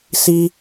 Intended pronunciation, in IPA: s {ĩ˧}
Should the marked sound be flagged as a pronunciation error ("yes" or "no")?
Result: yes